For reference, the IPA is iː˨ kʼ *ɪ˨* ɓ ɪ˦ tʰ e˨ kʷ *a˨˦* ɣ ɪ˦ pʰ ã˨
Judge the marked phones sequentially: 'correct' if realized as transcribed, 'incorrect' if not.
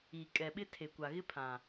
incorrect: ɛ˨, incorrect: a˨

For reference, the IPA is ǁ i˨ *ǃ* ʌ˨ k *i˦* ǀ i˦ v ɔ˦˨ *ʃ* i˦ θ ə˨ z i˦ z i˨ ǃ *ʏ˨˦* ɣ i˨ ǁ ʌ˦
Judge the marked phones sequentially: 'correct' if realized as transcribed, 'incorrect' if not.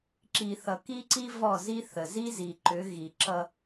incorrect: θ, correct, incorrect: z, correct

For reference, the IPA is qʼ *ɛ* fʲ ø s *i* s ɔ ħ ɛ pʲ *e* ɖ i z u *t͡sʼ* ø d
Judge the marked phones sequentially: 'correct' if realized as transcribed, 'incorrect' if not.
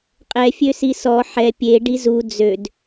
correct, correct, correct, incorrect: d͡z

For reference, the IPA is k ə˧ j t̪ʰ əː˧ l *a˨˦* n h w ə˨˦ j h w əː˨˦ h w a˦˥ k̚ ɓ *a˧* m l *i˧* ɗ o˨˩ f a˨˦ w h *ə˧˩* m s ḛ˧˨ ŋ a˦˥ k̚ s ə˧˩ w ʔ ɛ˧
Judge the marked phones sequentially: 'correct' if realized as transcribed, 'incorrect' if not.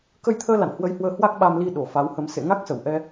incorrect: a̰˧˨, correct, correct, incorrect: ə˧

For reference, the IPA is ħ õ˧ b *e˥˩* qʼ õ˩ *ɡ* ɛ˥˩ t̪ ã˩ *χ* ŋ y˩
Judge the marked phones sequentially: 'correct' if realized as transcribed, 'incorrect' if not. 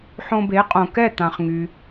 incorrect: e˩˥, incorrect: k, correct

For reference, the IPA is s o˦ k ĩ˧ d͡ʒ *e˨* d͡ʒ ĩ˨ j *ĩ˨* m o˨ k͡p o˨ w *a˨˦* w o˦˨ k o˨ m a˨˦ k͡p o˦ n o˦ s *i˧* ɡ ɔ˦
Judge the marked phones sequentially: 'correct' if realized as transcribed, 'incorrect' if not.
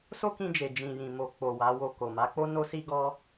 correct, correct, correct, incorrect: i˦

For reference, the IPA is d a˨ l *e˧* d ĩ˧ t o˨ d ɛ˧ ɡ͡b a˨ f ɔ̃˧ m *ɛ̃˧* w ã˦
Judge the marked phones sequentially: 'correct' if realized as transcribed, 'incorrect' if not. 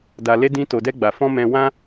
correct, correct

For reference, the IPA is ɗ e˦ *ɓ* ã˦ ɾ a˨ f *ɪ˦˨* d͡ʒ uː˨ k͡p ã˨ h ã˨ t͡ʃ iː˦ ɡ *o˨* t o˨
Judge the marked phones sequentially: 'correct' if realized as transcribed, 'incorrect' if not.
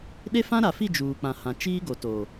incorrect: f, incorrect: i˦˨, correct

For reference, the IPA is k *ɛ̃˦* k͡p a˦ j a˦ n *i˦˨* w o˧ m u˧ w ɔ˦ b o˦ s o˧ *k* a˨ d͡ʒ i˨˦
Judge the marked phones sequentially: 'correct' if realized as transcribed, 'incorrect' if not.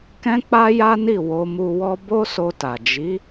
correct, correct, incorrect: t

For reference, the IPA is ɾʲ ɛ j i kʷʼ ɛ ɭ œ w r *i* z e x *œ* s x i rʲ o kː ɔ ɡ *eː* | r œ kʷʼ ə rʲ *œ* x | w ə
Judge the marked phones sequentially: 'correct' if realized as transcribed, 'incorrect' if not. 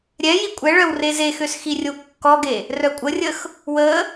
incorrect: e, incorrect: ø, incorrect: e, incorrect: ə

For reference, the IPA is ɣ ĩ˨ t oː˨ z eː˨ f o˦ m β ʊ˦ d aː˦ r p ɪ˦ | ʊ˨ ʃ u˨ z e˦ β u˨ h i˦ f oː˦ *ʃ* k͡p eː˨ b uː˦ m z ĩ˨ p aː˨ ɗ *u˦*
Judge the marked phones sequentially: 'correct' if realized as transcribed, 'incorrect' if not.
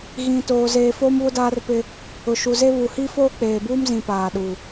incorrect: none, incorrect: u˨

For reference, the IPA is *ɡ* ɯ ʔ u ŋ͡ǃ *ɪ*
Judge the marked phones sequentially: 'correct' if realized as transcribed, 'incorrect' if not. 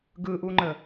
correct, incorrect: ə

